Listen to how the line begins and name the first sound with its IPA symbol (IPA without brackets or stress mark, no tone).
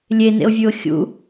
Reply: lʲ